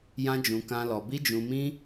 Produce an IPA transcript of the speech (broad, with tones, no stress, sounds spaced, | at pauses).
j ã˦ d͡ʒ ũ˧ k ã˦ l ɔ˧ b i˦ d͡ʒ ũ˧ m ĩ˦